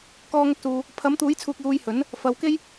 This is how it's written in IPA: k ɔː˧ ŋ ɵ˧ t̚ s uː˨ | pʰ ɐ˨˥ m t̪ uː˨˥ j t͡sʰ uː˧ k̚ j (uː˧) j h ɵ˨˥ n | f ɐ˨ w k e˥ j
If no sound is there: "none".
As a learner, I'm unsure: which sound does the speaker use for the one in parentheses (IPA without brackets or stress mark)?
uː˧